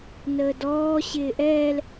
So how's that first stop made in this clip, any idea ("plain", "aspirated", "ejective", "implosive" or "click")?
plain